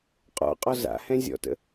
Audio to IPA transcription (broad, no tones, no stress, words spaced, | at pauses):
qʼɔ̰qʼɔ za̰hɛ̃ zʲɔ̰tə̰